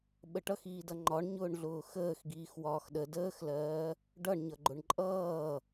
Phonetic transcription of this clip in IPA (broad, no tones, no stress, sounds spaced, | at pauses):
ɓ ə ʈ ʌ x iː d ʌ ŋ͡ǃ ɒ ɳ ɲ ʊː ɳ ɮ ʊː x əː x ɡ iː x w ɒː x ɗ ə d əː x l ɜː | ɖ ʌ ɳ ɲ ʌ ɡ͡ǃ ʊ ɳ ǃʼ ʌː